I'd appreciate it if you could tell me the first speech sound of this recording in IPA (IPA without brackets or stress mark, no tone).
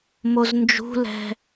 m